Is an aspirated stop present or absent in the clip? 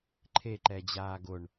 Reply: present